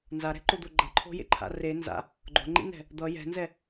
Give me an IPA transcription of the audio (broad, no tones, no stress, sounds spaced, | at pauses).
n z a ɾ ɛ̤ ǃ o d̪ o ɡ͡ǃ ʌ ǃʰ o̤ j ḛ ǃʰ a̰ r e n z a̰ | ɡ͡ǃ o̤ ŋ͡ǃ ḭ n ɛ̤ | d̪ ʌ j ɛ̤ n z ɛ